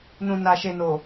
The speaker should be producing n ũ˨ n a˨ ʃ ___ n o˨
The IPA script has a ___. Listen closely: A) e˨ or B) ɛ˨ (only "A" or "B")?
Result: A